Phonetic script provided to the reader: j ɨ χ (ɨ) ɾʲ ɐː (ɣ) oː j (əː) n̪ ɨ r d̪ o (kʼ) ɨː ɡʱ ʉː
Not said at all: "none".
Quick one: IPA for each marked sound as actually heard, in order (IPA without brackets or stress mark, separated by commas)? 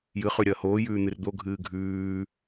ʉ, h, ʉː, ɡʱ